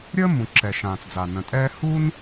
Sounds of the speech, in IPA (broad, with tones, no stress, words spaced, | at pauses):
ɾʲəː˦mũ˩ ǁɛ˩ʃãː˩t͡sd͡za˩ nə̃˩tʼɛː˦ hu˥n